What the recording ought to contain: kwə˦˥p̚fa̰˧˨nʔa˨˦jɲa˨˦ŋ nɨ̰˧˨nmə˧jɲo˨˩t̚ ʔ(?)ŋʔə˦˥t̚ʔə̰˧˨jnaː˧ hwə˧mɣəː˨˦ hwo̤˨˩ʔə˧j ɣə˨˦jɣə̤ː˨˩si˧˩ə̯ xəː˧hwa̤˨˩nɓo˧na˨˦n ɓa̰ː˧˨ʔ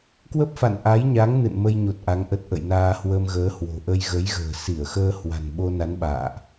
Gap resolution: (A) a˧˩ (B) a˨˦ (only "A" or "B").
B